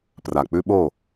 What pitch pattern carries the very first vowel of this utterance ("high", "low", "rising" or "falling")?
low